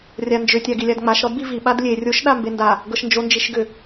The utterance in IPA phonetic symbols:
rʲ a n d͡ʒ ʏ tʲ a ɡ i lʲ a d ŋ͡m a ʃ ɾ ɔ d b i v i ɓ a d lʲ e rʲ o ʃ ɗ a m b e n d a | ɡ ɤ ʃ n d͡ʒ o n d͡ʒ i ʃ ɡ ʏ

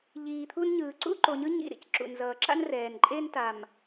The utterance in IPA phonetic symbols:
ʎ iː˨ t̪ʰ u˦ n ɲ ɯː˨ ǀ ṵ˦ ǃ o˨ ɲ ɯ˦ ɲ ḭ˦˨ ɾ ḭ˨ c ǁ ṵ˨ n z ʌː˨ ǁ a̰˦ n r ɛː˨ n ǃʼ e˦ n t a˨ m

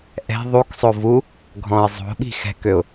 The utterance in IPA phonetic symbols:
ʔ ɛ̤ ðˤ u k sˤ o v u | ɡʱ ɔ̃ ɪ̯ zˤ o̤ ɓ i̤ x ɛ̤ k ø ʊ̯

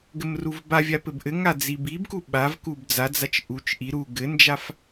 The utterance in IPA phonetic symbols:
ɡ ɘ m r u v b a vʲ a p ɘ b ʔ ɘ ŋ a d͡z i b i b k u ɓ a v k u b d͡z a d͡z a t͡ʃ ʔ u t͡ʃ ʔ i ɾ u ɡ ɘ n d͡ʒ a f

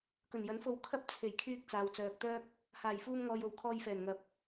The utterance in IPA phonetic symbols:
k ɵ˨˩ n j ɐ˨˥ n f o˧ w kʰ ɐ˥ p̚ t͡sʰ e˨˩ j kʰ yː˧ k̚ t͡s aː˨ w t͡s œː˨ k̚ t̪ œː˥ k̚ | h aː˨˩ j f uː˧ m ŋ ɔː˨ j o˨˩ w kʰ ɔː˧ j f ɛː˨˩ n ŋ ɐ˨˥ p̚

